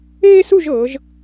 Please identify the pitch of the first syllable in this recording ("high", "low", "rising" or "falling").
high